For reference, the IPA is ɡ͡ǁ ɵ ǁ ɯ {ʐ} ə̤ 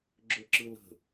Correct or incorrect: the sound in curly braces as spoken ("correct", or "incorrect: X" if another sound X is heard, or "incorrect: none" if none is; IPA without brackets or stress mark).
incorrect: l